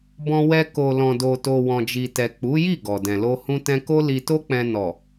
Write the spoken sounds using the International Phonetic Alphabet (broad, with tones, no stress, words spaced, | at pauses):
bɔ̃˧wɛ˧ ko˨lɔ̃˨do˨to˨ wɔ̃˨d͡ʒi˨tɛ˨ k͡pu˨˦ji˦˨ ɡɔ˨dɛ̃˨lo˧ hũ˧tɛ̃˧ko˦ li˧to˦k͡pɛ̃˧ nɔ˨